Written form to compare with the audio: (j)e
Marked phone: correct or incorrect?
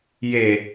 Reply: correct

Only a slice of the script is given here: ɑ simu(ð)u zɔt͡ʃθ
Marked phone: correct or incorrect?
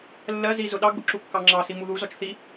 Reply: correct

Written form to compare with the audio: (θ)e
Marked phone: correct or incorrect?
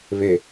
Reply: incorrect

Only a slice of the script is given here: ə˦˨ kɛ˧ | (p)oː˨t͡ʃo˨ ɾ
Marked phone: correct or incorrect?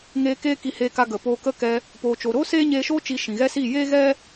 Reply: correct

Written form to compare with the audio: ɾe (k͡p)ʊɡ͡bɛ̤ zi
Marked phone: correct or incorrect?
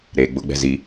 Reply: incorrect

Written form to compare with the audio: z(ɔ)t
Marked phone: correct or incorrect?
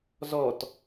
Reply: correct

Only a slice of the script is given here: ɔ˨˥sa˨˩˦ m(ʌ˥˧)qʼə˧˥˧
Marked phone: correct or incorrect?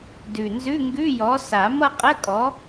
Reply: correct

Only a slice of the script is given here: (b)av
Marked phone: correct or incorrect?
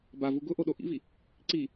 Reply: correct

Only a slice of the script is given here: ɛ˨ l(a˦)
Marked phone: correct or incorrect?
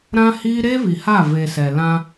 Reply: incorrect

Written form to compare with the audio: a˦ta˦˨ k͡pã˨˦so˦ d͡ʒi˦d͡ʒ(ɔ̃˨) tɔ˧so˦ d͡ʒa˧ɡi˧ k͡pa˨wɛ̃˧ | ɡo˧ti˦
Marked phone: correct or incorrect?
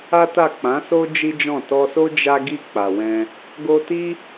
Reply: incorrect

